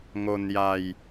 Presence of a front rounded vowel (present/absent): absent